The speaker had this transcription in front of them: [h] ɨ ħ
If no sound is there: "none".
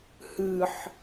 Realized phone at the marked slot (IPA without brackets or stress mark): h